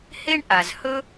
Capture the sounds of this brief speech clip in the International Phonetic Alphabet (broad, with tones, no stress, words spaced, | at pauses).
he˥ɳʔa˩z hɵ˥